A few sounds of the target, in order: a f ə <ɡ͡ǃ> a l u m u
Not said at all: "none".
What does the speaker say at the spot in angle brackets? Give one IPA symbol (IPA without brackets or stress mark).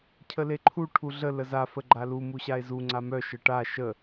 ɡ͡ǃ